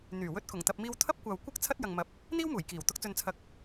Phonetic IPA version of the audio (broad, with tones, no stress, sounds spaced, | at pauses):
n̪ yː˨˩ w ɵ˧ t̚ k ʊ˨˩ ŋ t̪ ɐ˨ p̚ m iː˧ w t̪ʰ ɐ˥ p̚ kʷ aː˨ w kʷ ɐ˥ k̚ t͡sʰ ɐ˥ t̚ j ɐ˨ ŋ m ɐ˨˥ p̚ | n̪ iː˥ w m uː˨˩ j k iː˨˩ w t̪ ʊ˧ k̚ t͡s ɵ˨ n t͡sʰ ɐ˨˥ k̚